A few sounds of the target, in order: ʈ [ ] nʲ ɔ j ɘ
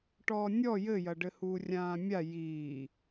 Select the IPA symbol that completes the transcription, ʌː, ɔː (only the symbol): ɔː